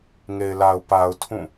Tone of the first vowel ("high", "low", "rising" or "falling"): low